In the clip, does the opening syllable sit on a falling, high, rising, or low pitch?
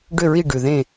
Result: falling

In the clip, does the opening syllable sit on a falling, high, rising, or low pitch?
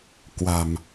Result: low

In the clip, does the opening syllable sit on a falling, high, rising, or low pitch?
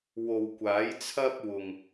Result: low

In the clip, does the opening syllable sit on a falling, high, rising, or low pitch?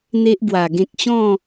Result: high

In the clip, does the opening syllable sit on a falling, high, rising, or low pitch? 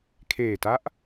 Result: low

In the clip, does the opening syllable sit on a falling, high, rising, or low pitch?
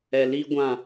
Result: low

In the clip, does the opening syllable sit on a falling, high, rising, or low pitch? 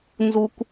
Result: low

